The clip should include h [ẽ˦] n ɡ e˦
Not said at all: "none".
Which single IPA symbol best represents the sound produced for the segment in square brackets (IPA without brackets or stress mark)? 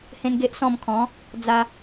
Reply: ẽ˦